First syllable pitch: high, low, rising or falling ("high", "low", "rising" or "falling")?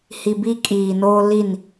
low